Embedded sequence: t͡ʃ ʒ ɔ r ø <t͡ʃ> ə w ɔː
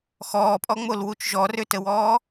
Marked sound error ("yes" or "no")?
yes